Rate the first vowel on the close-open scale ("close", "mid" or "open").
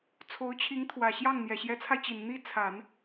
mid